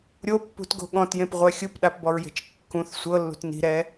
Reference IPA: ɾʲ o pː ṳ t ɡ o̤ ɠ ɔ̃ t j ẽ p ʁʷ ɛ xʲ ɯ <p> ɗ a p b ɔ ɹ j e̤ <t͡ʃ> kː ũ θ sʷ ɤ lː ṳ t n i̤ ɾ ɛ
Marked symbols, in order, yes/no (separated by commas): yes, yes